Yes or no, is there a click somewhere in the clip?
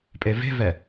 no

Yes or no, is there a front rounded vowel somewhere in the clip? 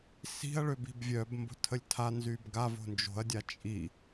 yes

